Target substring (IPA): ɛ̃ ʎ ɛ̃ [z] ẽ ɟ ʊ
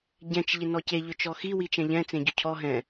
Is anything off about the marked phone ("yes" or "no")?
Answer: yes